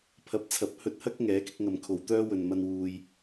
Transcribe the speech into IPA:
pʰ ɐ˨˥ p̚ t͡sʰ ɐ˨˥ p̚ h ɵ˧ t̚ h ɐ˥ k̚ ŋ ɛː˨˥ k ɪ˧ k̚ ŋ ɐ˨ m kʰ o˨ w t̪ œː˥ w ɵ˨ n m ɐ˧ n w uː˧ j

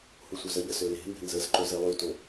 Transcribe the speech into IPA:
h u sʷ œ z ə ʎ ə s ø l e̤ m b e̤ n z ə z ǃ ø z e lˠ y t o

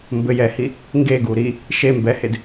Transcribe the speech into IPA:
m b ɘ j ɛ h i | ŋ ɡ e ɡ u ɾ i | ʃ e m b ɛ h e d

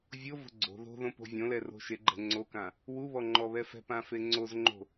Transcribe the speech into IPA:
vʲ o v o̤ ɡ͡ǀ o̤ ð o̤ ð õ p o̤ vʲ õ l ɛ r o̤ ʃ e ɡ͡ǃ ɛ̤ ŋ͡ǀ o k ã | w u β ɔ ŋ͡ǃ ɔ β ɛ f ɛ̤ p ã f e ŋ͡ǀ o z ŋ͡ǃ o̤

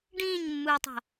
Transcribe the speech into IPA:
ɖ ĩː ɲ mː ɯː tˤ a̤

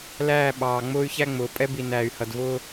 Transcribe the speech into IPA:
l æː˦˨ ɓ ɑː˨ ŋ͡m ʊː˦ y̯ ç æ˦ ŋ͡m ʊː˨ pʼ ɛ˦ b i˨ n æː˨ y̯ h ʌ˨ d v ʊː˦

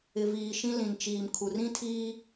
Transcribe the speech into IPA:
ɪ˨ v iː˨ ʃ ĩ˦ l ĩ˨ n t͡ʃ iː˨ m kʰ u˨ r ĩ˦ tʰ iː˦

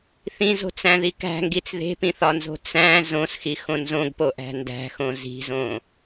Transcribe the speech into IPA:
θ ĩ z o̤ t͡s æ̃ ð i k æ̤ ŋ ɡ i t͡s ð e̤ p ĩ θ ɒ n z o̤ t͡s æ̃ z õ s x i x õ n z õ ɡ p o ʔ æ̤ n d æ̤ x õ z i̤ z õ

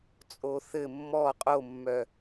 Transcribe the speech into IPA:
t͡sʼ o θ ɘ mː ɔ qʼ o mː œ

